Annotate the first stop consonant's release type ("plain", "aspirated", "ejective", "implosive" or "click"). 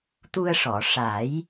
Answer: plain